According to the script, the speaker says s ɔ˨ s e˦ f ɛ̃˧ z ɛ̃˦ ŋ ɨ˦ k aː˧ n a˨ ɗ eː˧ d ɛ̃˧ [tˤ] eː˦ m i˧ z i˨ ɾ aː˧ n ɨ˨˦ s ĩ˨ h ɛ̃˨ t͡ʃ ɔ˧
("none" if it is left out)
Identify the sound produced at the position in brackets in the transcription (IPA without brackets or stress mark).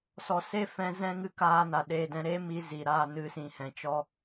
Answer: ɾ